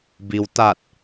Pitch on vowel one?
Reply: low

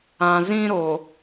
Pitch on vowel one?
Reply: low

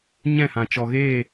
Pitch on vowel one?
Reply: falling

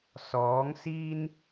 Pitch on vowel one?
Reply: rising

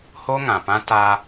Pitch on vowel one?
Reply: high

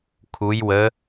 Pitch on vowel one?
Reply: rising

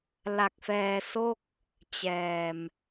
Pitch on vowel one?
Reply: low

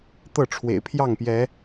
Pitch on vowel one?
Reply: falling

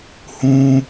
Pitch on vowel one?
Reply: high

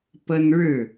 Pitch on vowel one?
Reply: high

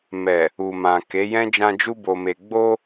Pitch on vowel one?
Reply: low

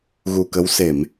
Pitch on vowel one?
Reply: low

